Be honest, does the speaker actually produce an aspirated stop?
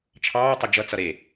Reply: yes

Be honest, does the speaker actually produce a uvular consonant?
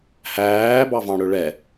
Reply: no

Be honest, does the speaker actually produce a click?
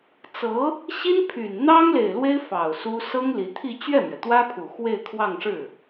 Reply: no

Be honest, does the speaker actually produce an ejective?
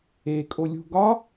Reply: yes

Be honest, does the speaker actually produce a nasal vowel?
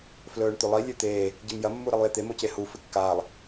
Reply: no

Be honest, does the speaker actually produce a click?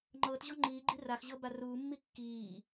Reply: yes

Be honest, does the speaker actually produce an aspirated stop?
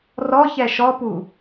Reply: no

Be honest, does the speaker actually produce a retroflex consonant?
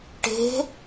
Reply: yes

